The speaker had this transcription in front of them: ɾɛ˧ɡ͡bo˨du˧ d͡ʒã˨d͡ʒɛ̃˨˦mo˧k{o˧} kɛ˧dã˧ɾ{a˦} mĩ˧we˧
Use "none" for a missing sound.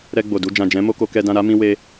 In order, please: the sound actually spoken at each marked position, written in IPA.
o˧, a˦

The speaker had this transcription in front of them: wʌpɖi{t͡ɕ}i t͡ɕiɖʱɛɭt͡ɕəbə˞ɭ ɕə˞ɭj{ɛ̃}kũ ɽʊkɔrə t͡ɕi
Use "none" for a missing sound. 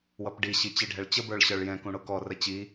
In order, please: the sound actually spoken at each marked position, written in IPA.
ɕ, ɛ̃

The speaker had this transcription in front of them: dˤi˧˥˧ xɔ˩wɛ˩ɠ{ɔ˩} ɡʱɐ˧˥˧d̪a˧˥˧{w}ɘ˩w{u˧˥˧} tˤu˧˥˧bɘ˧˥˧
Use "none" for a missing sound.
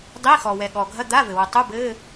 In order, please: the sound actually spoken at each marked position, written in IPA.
ɔ˩, v, u˩

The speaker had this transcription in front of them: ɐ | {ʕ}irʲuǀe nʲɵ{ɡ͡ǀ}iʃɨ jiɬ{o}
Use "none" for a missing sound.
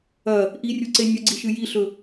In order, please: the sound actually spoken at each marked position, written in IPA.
ʔ, ɡ͡ǀ, ɵ

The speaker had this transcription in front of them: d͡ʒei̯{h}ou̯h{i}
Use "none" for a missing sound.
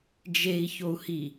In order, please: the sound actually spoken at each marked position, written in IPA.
ç, i

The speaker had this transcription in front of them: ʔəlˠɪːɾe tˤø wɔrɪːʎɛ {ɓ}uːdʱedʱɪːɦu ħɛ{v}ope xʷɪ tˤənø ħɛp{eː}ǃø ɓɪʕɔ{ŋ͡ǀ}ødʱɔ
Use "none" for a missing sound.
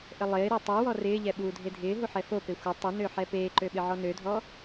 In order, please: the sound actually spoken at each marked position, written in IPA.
ɓ, f, eː, n

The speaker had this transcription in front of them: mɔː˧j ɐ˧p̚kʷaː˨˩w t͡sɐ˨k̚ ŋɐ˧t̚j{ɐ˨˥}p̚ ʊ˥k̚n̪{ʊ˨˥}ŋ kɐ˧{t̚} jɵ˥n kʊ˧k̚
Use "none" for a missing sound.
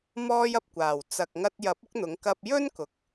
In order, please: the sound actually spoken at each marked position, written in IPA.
ɐ˨˥, ʊ˨˥, p̚

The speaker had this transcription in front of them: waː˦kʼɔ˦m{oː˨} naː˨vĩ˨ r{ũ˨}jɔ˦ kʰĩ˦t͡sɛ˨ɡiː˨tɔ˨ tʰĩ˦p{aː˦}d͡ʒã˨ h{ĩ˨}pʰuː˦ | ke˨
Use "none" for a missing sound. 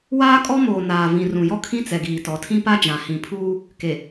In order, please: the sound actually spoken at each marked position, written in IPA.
oː˨, ũ˨, a˦, ĩ˨

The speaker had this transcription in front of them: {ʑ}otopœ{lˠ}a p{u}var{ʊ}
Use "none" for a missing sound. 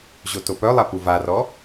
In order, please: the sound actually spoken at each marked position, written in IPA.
ʑ, lˠ, u, ɔ

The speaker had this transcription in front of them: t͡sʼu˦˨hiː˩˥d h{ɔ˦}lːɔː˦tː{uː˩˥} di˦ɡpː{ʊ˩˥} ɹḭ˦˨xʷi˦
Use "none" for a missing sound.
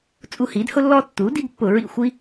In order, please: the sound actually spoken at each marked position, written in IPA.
ʊ˦, uː˩˥, ʊ˧˩˧

